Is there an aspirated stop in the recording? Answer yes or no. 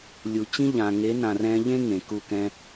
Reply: no